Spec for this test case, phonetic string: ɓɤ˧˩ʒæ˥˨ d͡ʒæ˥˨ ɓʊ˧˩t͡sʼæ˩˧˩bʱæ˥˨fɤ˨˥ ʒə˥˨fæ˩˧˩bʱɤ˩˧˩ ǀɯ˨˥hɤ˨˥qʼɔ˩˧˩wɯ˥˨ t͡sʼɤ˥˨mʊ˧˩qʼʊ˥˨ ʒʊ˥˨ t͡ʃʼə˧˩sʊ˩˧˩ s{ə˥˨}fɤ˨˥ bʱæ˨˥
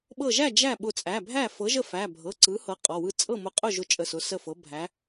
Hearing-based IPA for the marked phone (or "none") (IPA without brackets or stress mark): ə˥˨